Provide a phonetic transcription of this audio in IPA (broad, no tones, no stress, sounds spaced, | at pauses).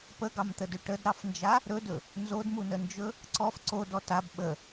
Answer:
p ə ɡ ɑ m t̪ ə d ɵ ʈ ə d ɾ ɑ f n d͡ʒ a | ɾ ɵ d ɵ | n z o d m u n ə n d͡ʒ ɵ | ǀ ɔ f ǀ o d ɔ t a b ɓ ə